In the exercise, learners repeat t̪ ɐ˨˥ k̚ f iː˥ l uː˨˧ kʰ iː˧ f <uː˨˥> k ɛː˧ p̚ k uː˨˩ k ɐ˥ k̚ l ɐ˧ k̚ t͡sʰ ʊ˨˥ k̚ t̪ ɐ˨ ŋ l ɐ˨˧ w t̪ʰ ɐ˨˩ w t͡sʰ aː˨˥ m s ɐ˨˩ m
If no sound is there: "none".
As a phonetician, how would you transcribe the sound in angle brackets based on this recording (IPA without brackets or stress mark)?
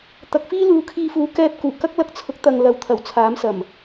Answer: uː˨˥